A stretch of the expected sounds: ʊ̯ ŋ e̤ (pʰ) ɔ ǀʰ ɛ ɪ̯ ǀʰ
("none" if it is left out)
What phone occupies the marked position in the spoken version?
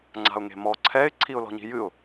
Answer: m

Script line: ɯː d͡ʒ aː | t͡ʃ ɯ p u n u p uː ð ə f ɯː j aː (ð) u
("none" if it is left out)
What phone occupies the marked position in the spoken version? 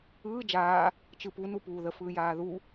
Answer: ð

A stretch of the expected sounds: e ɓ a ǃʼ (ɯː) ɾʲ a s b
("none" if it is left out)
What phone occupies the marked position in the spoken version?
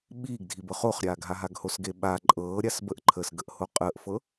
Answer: ɤː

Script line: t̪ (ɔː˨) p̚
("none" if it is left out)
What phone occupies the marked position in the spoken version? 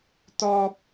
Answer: ɔː˨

